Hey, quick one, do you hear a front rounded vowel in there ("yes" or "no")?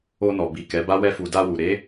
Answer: no